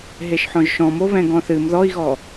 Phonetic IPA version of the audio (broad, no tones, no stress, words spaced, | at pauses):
ɦeʃħɔ̃ʒʃɔ̃m oβɛ̃ɡɔ̃θɨm ðɔi̯ɣɔ